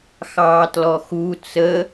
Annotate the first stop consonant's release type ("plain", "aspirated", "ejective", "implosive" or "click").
plain